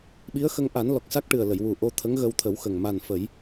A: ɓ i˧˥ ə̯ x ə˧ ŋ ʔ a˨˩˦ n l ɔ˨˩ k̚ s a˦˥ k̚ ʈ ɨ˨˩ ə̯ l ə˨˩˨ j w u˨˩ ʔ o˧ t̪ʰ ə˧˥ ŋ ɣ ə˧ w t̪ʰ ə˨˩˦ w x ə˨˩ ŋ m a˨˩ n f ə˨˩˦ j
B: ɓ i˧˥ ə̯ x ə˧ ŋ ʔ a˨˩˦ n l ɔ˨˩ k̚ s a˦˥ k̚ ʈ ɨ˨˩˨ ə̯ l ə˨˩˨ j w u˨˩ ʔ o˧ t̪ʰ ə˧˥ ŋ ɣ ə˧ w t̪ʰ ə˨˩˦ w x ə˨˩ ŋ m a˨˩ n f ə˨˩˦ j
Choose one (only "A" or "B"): A